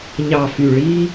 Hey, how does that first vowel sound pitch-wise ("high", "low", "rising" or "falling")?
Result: low